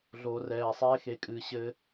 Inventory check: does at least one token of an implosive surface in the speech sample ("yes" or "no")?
no